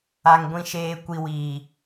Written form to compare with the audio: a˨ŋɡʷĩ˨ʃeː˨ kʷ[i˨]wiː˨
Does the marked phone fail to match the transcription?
no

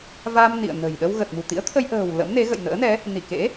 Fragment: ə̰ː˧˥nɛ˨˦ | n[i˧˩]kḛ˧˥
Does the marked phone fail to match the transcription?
no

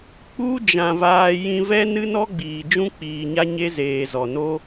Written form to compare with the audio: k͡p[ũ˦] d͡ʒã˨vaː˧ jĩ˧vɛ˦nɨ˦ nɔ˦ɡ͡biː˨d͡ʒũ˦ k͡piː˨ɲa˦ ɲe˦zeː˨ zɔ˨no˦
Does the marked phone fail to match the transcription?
yes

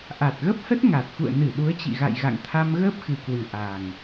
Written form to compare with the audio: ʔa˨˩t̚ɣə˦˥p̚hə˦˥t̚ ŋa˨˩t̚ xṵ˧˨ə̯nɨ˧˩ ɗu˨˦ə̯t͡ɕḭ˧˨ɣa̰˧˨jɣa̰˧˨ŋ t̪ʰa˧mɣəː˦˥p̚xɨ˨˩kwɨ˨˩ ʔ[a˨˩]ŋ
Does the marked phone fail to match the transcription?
no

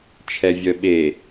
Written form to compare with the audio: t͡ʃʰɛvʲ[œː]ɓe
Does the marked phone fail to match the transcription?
yes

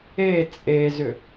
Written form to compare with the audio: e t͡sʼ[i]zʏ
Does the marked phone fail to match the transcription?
yes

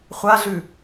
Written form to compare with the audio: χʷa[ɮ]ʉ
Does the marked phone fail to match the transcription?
no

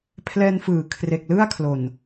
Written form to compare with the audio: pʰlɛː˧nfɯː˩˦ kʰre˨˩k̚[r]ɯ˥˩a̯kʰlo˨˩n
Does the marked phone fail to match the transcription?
yes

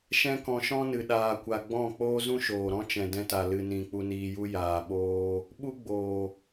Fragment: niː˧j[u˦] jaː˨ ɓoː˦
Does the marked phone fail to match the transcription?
no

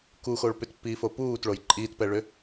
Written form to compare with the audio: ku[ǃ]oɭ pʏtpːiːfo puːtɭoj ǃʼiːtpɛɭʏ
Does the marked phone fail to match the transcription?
yes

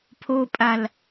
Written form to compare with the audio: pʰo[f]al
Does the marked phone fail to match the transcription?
yes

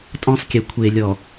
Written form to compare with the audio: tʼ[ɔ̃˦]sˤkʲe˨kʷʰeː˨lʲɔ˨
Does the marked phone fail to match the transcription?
no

